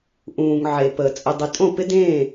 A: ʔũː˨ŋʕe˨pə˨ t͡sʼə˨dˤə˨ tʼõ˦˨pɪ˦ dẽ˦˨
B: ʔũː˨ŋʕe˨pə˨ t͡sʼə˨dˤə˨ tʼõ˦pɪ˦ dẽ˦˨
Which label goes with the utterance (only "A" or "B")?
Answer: A